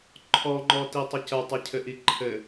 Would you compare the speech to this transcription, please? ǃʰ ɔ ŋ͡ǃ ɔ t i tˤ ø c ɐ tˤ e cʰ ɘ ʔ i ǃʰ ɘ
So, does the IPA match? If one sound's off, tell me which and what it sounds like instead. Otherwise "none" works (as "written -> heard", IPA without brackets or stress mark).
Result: ø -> ɘ